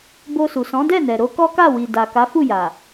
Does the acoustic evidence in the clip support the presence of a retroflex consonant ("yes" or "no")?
no